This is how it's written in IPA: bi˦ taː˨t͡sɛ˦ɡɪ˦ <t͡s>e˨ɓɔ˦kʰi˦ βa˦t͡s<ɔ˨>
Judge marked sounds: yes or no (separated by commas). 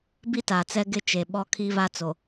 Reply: no, no